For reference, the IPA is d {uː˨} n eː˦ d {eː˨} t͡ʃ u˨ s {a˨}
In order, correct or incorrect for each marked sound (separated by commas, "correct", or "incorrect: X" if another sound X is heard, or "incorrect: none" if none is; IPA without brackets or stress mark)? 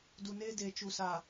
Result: incorrect: u˨, correct, correct